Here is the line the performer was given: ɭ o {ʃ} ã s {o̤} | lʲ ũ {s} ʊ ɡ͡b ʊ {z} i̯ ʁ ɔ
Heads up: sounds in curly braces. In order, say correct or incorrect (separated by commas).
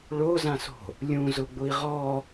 incorrect, correct, incorrect, incorrect